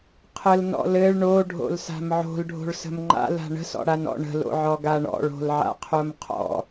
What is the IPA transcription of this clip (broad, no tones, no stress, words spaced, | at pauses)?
qʰəlnɔ̰ lɘɭ ɳoɖʱo̰lsa̤m ʕo̤lɖʱo̤ɭsə̤m ŋ͡ǃa̰la̤ ɳə̤sɔ̰ɽanɔ̰ ɳə̤lo̰ʕɔɡa ɳɔ̰ɭo̤lʕa̰qʰom qʰɔ̰